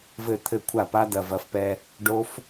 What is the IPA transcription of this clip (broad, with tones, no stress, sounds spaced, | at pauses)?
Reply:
v ɘ˥˩ t̪ʰ ɘ˥˩ kʷʰ a˥˩ p a˦˥ d ɐ˨˩ v ɐ˩˥ f p ɛ˧ | ɖ o˦˥ f